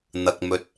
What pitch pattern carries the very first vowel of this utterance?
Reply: low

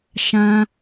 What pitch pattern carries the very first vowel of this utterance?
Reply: high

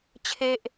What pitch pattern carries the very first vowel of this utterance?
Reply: high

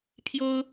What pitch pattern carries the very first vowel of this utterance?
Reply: high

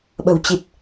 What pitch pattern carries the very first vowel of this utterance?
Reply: low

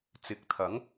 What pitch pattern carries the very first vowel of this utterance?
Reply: rising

